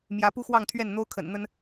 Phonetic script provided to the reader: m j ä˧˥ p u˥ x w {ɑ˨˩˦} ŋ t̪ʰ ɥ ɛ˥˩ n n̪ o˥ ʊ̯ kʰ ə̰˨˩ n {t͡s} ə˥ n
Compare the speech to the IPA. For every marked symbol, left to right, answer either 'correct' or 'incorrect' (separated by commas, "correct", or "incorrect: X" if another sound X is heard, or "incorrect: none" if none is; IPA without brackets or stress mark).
incorrect: ɑ˥˧, incorrect: n̪